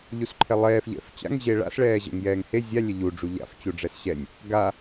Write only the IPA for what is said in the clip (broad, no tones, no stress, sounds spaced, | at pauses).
ʎ u s ǃʰ ɛ lˠ ɛː f ʎ ɛ̰ f t͡ɕ a̰ ŋ ʑ e ɭ a̰ s ɭ ɛː ʑ ɛ̰ ŋ j ɛː ŋ h e zʲ a lʲ ɛ ʎ u ɖ͡ʐ u ʎ a̰ f t͡ɕ u ɖ͡ʐ ɛ s ɕ ɛ nʲ | ɡ a